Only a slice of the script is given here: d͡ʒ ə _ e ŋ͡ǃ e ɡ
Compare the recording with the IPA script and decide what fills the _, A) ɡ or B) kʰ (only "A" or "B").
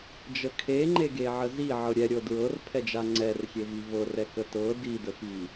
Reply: B